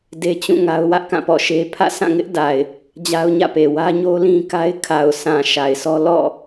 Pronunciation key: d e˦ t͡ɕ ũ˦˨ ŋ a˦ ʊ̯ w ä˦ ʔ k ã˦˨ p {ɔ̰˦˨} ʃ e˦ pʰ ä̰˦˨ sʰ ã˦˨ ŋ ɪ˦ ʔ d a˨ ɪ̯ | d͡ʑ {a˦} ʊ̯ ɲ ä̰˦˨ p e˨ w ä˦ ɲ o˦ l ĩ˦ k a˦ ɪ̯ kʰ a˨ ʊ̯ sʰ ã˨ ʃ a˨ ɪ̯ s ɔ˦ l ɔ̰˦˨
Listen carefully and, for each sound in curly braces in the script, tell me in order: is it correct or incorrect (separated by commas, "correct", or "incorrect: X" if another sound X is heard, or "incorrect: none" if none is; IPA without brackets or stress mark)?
correct, correct